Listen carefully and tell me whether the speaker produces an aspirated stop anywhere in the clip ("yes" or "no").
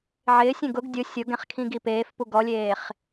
yes